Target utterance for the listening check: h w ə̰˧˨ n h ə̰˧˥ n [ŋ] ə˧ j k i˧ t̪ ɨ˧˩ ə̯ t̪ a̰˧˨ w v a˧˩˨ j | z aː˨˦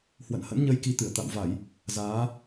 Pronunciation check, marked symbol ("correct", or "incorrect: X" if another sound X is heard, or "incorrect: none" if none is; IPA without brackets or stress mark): incorrect: ɲ